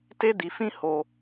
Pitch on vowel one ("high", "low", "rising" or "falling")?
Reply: high